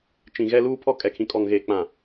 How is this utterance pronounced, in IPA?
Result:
t͡ʃ ĩ˨ ɣ ɛ˦ l uː˦ pʰ ɔ˦ kʼ ɛ˨ kʰ ĩ˨ kʼ ɔ˨ ŋ ɣ eː˨ k͡p ã˨

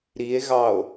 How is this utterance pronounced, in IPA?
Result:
ɾ i e̯ ɣ ɑ o̯

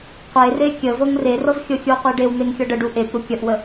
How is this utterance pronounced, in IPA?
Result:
qʷ e r e kʲ ə v ɤ ŋ r e r ɤ v xʲ ɤ xʲ u qʷ e ɖ e w n̪ e ŋ xʲ ɤ ɖ ə ɖ u ʔ e p ɾ u kʲ ə ʔ w ə

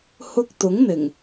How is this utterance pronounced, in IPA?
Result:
h ʊ˧ k̚ t̪ ʊ˨˥ ŋ n̪ ɪ˨˩ ŋ

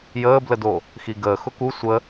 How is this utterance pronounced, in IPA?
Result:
j əː b l ə d o | x i ɡ əː x ʊ k u sʷ ə

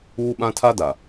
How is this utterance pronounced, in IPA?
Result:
uː˦ ɓ ã˦ tʰ a˦ d a˨

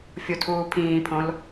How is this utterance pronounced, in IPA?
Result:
fʲ u tʰ uː pʰ ĩː pʰ õ l

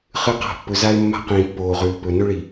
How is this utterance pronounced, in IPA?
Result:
χ ɨ˨˦ q a̤˨ pː ɵ˨ z a˦ ɪ̯ mː a̤˦ q ĩː˨ pː oː˨ ʁ ʉː˨ p ɵ˨ n ɵ˦ ɭ i˨

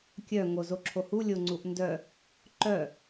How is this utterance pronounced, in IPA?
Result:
kʲ œ ŋ o z o ǁʰ o h u lʲ o ŋ͡ǀ u ʔ n d œ | ǃ œ

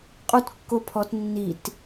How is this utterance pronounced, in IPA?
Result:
qʼ u t kː o pʰ ɔ t nː i t

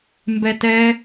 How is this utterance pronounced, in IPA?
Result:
m b ɛ t ɛ

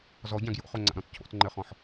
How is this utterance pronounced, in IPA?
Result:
z ɔ ɟ ã ɡ j o̰ χ o ŋ͡ǀ a̰ ɾ ɔ̃ t cʰ o̰ t ŋ͡ǃ ɘ χ ɔ̃ ħ

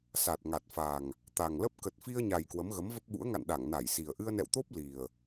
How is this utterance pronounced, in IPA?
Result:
s a˨˩ t̚ ŋ a˨˩ t̚ f a˨˩ ŋ | t̪ a˨˩ ŋ l ə˦˥ p̚ k ə˨˩ t̚ f i˧ ə̯ ɲ a˨˩ j k w ə˨˦ m ɣ ə˨˦ m v ə˦˥ p̚ ɓ ṵ˧˥ ə̯ ŋ a̰˧˨ n ɗ a˧˩ ŋ n a˧˩ j s i˨˩ ə̯ ʔ ɨ˧ ə̯ n ɛ̰˧˨ w t̪ o˦˥ p̚ l i˨˩ ə̯

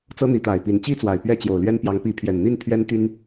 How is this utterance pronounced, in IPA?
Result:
t͡s ɤ˦ n̪ i˨˦ t̪ a˨˩ ɪ̯ p i˨˦ n t͡ɕ i˦ t͡s w a˨˩ ɪ̯ p ɥ ɛ˦ t͡ɕ j o˨˩ ʊ̯ l ɥ ɛ˦ n p j ɑ˨˦ ŋ p i˨˦ pʰ j ɛ˨˩ n n̪ i˥˨ n pʰ ɥ ɛ˦ n t̪ y˦ n

